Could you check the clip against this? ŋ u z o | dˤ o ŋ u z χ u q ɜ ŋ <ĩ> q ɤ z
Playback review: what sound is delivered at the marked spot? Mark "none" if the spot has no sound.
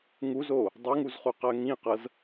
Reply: ĩ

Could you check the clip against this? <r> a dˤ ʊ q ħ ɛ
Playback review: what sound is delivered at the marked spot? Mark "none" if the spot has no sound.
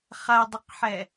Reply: χ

